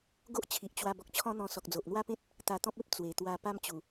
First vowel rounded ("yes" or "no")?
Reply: yes